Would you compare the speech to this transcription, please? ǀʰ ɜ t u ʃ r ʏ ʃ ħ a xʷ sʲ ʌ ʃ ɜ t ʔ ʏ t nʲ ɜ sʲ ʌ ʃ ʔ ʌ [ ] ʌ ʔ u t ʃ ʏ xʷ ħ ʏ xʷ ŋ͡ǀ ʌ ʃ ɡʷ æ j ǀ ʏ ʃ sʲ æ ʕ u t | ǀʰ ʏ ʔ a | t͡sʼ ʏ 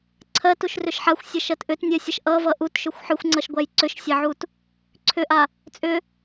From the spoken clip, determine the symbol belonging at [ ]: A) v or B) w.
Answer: A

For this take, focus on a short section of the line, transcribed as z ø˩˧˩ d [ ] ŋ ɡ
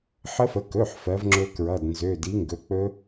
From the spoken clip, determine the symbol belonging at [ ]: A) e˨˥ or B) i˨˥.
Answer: B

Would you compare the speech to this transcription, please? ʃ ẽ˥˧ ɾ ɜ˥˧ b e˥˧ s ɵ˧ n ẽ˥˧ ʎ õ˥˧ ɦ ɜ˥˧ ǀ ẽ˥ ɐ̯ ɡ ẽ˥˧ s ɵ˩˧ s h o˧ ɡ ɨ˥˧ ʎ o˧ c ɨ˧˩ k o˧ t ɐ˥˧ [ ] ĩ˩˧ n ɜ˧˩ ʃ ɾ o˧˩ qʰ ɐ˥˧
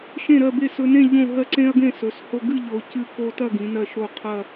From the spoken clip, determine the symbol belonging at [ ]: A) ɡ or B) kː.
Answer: A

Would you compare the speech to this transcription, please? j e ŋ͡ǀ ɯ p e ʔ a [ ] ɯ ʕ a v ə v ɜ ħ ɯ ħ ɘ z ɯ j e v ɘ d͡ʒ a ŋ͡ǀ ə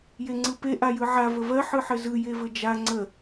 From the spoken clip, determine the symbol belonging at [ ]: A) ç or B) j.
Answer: B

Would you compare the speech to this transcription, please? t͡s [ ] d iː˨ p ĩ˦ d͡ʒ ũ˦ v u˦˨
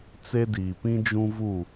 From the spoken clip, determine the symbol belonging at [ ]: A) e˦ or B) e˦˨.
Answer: A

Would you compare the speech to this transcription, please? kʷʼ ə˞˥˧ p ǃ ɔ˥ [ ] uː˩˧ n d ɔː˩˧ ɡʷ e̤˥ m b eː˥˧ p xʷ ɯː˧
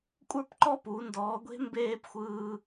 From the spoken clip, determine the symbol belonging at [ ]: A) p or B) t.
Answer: A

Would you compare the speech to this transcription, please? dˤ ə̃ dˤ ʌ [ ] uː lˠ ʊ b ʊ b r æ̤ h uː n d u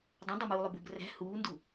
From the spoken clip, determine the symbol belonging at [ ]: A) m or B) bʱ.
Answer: A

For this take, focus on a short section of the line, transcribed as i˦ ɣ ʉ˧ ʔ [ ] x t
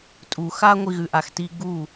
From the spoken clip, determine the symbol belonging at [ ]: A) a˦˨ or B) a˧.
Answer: B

